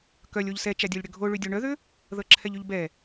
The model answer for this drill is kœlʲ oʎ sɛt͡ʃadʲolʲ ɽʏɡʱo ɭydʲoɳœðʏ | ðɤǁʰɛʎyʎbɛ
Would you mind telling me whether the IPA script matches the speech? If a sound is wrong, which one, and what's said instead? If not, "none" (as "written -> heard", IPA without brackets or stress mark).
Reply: none